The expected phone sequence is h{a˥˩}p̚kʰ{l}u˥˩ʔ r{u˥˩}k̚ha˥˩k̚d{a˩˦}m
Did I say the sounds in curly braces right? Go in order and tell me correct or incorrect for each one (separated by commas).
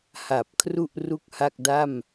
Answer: incorrect, incorrect, correct, incorrect